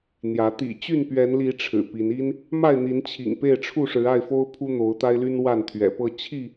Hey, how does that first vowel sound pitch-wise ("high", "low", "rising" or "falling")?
rising